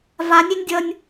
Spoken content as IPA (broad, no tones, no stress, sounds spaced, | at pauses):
v a nʲ e nʲ dʲ ʌ nʲ